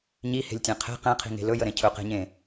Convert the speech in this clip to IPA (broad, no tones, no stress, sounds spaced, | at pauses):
ɲ i h e̤ lʲ tʲ ɛ̃ qʰ e̤ q ẽ qʰ i̤ ŋ e̤ l ɵ j ə ɾ ẽ cʰ ɵ q e̤ ɲ ẽ